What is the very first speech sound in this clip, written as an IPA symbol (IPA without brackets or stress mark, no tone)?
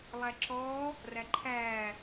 lˠ